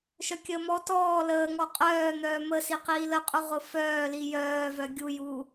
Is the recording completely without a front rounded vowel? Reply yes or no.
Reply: no